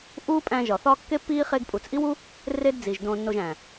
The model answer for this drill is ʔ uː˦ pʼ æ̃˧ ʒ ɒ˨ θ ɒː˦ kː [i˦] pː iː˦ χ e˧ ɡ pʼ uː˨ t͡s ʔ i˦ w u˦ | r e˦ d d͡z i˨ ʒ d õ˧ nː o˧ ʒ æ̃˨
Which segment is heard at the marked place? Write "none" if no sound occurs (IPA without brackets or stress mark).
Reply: e˦